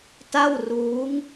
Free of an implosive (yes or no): yes